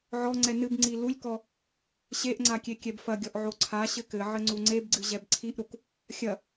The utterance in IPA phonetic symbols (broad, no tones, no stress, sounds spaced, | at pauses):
ʕ ɔ ŋ͡ǀ ɛ n ɨ b ŋ͡ǀ i l u lʲ k ɔ | ɕ e ʔ ŋ͡ǀ a kʲ e kʲ ɛ b f ɐ ɡʲ ɔ ʔ ʕ o ǀʰ a ɕ ɘ k ɘ ʕ ɘ ŋ͡ǀ u ŋ͡ǀ e b ɡ͡ǀ ɨ ʑ ɛ b ǀʰ i ʔ ɾ u k | xʲ ɐ